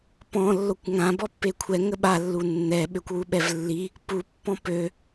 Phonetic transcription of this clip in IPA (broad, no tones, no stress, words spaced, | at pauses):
pɔ̃ lːokʷŋã bɔpːekʷʰɛ ŋəɓalːu nːɛɓøkʷwu ɓɛvlːi | pu pːɔ̃pø